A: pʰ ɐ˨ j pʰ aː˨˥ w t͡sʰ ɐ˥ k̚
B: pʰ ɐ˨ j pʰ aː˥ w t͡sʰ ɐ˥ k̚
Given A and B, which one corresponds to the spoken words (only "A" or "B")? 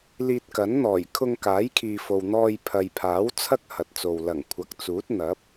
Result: A